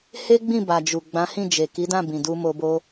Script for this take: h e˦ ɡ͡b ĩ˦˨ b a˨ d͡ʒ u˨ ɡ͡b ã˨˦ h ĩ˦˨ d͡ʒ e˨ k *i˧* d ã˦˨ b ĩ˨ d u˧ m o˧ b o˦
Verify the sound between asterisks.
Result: incorrect: i˨˦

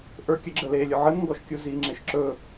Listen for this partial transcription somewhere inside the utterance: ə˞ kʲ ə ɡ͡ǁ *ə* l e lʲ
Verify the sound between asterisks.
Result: correct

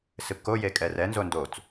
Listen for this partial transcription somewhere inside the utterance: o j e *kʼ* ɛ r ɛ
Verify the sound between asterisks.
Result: correct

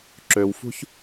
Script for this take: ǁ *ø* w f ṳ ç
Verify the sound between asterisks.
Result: correct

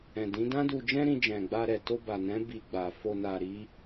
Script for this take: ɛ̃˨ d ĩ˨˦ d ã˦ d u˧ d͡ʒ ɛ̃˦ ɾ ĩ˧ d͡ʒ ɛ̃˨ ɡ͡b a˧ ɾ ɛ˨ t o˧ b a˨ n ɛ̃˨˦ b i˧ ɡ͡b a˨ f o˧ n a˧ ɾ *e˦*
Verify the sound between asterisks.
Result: incorrect: i˦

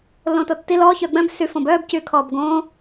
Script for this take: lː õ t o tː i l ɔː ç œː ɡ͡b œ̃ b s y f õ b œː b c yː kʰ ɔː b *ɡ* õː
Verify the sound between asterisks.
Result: correct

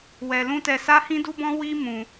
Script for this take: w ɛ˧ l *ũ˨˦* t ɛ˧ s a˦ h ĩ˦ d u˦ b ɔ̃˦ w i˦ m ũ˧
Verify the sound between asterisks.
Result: incorrect: ũ˦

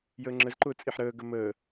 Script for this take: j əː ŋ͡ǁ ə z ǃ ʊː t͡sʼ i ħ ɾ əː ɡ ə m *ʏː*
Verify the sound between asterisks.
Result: incorrect: əː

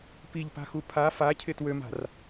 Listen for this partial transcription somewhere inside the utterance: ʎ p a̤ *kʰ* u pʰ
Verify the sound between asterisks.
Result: incorrect: x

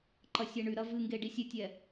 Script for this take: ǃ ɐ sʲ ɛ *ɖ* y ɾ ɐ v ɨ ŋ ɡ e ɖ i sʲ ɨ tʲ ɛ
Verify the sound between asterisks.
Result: incorrect: ɳ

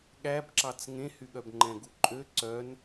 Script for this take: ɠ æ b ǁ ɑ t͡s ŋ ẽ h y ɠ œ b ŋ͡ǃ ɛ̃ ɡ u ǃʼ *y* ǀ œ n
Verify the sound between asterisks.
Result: incorrect: ø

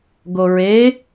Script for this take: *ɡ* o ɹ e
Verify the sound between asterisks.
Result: correct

